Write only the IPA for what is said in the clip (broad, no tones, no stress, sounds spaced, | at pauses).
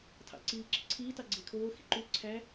tʰ ɑ̰ ǀ iː ǁ i ǀʰ iː t ɑ ɡ͡ǀ e kʰ oː x ḭ ǃ u ǀʰ æ